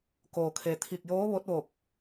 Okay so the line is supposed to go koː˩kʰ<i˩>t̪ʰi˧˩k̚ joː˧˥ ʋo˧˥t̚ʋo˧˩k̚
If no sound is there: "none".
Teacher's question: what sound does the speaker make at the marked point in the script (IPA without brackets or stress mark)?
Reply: e˩